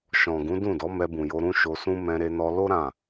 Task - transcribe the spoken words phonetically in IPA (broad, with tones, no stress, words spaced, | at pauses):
ʃɔ̃˨ɡũ˨˦dũ˦˨dɔ˨˦ mɛ˧bũ˨jo˧ ɾũ˦ʃo˧sũ˦ mɛ̃˧ɾe˧nɔ˧ lo˦ ɾã˦˨